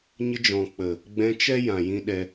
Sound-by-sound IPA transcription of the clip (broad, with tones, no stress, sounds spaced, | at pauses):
ɲ ə˧ d͡ʒ ɔ̃˨ k͡p ə˨ | ɡ͡b ɛ̃˧ t͡ʃ ɛ˦ j ã˨ j ĩ˦ ɗ ɛ˦